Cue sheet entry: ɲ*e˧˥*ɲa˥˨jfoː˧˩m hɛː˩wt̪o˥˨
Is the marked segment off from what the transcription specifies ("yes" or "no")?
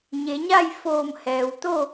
yes